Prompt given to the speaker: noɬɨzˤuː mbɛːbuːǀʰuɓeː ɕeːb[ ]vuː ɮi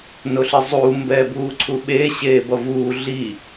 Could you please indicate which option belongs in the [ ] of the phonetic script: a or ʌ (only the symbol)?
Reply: ʌ